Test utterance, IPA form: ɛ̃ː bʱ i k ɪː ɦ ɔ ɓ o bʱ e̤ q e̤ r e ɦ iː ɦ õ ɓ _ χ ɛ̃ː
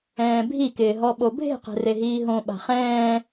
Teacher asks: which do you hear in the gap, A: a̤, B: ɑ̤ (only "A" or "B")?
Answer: A